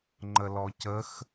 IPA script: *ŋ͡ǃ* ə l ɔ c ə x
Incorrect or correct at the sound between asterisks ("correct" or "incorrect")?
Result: correct